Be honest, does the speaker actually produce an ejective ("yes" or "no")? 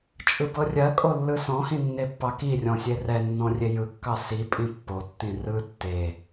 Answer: yes